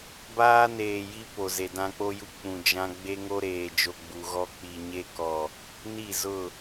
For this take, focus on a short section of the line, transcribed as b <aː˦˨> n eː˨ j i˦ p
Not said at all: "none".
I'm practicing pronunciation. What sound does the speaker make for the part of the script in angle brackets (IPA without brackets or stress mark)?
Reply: aː˦